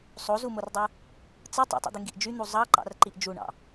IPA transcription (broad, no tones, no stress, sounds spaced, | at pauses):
sˤ o z u m o r dˤ ɯ | t͡s ɯ tˤ o̰ tˤ ṵ d̪ ɯ ŋ ɡ i ʔ d͡ʒ y n̪ u zˤ ɑ ǃ ɑ̰ r ǃ i ʔ d͡ʒ u ɳ ɑ̰